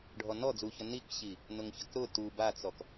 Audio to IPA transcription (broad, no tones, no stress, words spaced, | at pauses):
ɖʱɔnɔ d͡zuçɐ nikɕi | nʊŋçɐkɾʊ tu bat͡sɔk